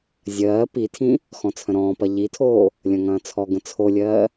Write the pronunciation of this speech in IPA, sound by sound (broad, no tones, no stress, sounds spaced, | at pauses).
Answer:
zʲ ɜː p i tʰ ĩ | x ɔ̃ t͡sʰ ə̃ ɾ ɔ̃ː p ɐ ʎ i tʰ oː | lʲ ɐ̃ ŋ ɐ̃ː t͡sʰ ɔ ɡ ə̃ t͡sʰ o lʲ ɜː